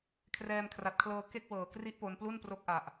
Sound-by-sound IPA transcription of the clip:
kʰ r ɛː˧ m kʰ r a˨˩ t̚ kʰ l ɤː˧ k e˥˩ k̚ w ɤː˨˩ k r i˦˥ ʔ p o˧ n p l u˥˩ n p r o˦˥ k̚ ʔ a˨˩ ʔ

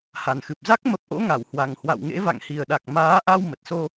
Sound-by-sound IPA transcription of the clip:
h a˨˩ n x ɨ˨˩ p̚ z a˦˥ k̚ m ə˦˥ p̚ ʔ o̰˧˥ ŋ a˧˩ w h w a˨˩ ŋ h w a̰˧˨ w ŋ ḛ˧˥ v a̰˧˨ ŋ h i˨˩ ə̯ ɗ a˨˩ k̚ m aː˨˦ ʔ a˧ w m ə˨˩ t̚ s o˧

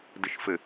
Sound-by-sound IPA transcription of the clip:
d ə ʃ f ə

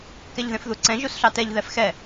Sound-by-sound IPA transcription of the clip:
k ɛ ʎ ð ẽ f ð u ǀ ɛ̃ ʒ u s ɬ ɑ t ɛ ʎ ð ɛ f x ɛ

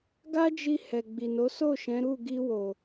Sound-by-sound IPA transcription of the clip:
ɡ a˦ d͡ʒ i˧ h ɛ˨ ɡ͡b i˨ n o˨˦ s o˦˨ ʃ ɛ̃˨˦ ɾ u˦˨ ɡ i˧ w o˨

